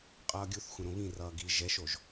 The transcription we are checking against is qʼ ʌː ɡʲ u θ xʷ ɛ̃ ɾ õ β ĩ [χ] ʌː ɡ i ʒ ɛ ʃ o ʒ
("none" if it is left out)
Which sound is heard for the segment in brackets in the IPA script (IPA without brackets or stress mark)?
r